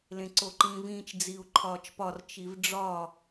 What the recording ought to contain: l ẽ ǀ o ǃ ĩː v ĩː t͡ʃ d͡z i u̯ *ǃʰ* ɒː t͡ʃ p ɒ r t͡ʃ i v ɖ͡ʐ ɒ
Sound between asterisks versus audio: correct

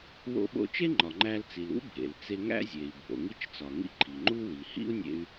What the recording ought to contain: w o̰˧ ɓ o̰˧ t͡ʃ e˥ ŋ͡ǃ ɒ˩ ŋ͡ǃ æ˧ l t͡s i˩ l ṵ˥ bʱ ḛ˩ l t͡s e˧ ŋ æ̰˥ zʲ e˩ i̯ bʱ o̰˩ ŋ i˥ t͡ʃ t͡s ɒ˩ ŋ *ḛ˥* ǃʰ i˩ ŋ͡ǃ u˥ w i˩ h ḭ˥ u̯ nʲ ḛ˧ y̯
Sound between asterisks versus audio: incorrect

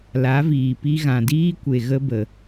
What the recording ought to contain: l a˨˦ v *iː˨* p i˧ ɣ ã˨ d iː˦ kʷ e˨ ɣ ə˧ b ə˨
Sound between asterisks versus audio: correct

